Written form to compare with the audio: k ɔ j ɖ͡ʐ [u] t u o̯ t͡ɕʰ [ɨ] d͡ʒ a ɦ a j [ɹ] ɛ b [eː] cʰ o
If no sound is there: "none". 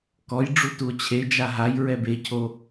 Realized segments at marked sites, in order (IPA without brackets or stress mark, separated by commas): u, e, ɹ, e